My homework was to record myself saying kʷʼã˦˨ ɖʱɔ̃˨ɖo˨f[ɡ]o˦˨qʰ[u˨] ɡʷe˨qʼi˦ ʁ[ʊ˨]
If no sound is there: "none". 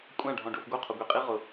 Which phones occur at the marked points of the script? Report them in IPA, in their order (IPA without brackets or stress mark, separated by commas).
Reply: ɡ, ʊ˨, ʊ˨